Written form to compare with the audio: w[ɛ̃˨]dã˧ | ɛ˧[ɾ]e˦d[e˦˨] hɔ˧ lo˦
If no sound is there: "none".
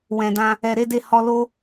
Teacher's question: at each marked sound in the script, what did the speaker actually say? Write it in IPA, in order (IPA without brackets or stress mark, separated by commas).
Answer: ɛ̃˨, ɾ, e˦˨